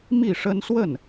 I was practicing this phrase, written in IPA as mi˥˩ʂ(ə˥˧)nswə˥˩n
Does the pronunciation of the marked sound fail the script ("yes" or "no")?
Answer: yes